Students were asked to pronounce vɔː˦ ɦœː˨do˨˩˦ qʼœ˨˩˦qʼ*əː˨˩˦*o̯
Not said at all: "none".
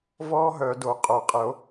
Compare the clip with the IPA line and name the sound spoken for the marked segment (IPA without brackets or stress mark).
ə˨˩˦